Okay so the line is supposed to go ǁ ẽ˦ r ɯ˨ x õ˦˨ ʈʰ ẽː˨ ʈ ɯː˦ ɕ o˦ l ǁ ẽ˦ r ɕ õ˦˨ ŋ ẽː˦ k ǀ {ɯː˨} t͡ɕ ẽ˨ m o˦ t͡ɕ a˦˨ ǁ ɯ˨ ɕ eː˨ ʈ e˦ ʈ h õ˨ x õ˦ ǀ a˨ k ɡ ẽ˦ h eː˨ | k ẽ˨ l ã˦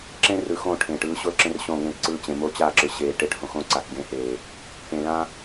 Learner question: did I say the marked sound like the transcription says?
no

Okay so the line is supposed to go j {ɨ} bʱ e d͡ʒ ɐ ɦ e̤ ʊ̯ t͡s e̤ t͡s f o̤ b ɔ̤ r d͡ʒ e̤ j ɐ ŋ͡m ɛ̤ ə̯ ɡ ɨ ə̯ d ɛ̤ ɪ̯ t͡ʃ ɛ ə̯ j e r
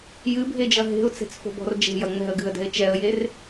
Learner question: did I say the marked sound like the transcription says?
yes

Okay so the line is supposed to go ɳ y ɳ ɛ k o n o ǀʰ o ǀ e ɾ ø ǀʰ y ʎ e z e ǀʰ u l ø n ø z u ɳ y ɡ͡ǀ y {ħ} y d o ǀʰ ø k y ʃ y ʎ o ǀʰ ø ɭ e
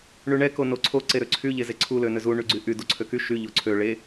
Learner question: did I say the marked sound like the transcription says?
no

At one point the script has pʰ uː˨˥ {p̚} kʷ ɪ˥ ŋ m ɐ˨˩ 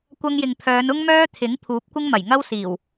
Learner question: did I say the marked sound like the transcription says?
yes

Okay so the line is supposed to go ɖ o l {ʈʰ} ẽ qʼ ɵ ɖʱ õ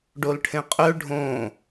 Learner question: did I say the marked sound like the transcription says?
yes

